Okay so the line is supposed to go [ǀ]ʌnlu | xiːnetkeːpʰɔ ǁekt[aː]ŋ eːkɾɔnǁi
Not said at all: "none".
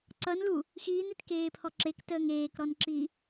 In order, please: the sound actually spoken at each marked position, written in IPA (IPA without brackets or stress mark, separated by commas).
ǀ, əː